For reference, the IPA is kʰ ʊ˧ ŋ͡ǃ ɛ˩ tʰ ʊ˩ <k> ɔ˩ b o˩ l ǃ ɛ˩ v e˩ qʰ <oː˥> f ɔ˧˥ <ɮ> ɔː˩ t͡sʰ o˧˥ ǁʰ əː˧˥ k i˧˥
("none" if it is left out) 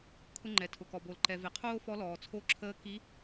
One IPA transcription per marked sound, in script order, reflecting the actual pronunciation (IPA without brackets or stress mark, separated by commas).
k, oː˥, l